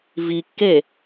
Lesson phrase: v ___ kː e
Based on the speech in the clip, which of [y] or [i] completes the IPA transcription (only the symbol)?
i